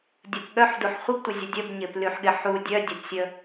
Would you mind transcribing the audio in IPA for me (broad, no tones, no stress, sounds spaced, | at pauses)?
dʲ ə p ɠ œ ħ d u ħ χʷ ə b tʷ ɪ zʲ ə dʲ ə b ɲ ɪ p l y ħ ɠ ɪ ħ u dʲ œ dʲ ə p sʲ ə